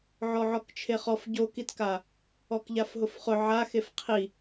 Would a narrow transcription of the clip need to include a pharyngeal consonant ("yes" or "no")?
yes